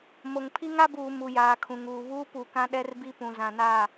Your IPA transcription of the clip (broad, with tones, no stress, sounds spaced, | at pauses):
m o˨ ŋ pʰ i˦ ŋ a˦ b uː˨ m u˨ j aː˨ kʰ ũ˨ ŋ uː˨ β uː˦ p u˨ k ã˦ ɗ ɛ˦ r b i˦ p ũ˨ z ã˨ n a˦˨